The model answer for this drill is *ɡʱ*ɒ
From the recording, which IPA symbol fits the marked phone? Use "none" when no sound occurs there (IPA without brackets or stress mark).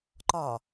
ǃ